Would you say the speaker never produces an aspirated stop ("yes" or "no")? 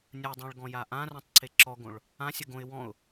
yes